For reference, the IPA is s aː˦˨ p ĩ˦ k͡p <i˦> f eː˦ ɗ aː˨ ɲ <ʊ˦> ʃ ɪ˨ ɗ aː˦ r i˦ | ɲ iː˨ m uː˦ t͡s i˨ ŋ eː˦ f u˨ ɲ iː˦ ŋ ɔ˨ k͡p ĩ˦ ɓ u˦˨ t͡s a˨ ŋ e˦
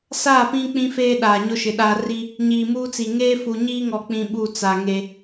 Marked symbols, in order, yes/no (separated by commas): no, yes